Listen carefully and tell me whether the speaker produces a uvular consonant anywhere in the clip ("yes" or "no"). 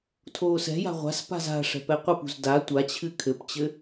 yes